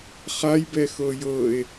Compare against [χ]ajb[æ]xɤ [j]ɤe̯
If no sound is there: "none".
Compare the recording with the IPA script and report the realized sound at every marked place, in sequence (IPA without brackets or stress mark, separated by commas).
χ, ɛ, j